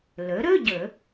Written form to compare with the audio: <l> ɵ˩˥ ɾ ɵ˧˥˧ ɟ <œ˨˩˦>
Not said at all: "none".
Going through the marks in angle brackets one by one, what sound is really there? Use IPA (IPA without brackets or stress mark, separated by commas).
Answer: l, ɵ˨˩˦